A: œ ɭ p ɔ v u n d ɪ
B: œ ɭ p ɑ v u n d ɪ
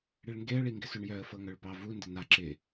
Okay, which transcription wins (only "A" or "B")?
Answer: B